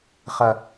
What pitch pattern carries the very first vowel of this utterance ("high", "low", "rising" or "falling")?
low